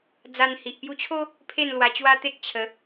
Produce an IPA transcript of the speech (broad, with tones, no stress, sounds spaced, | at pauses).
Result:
d͡z a˧ n h i˨ ʔ p j u˧ t͡ɕʰ o˦ | pʰ e˥˧ n l w a˧ t͡ɕ w a˦ t̪ e˦ k̚ t͡ɕʰ ə˨˦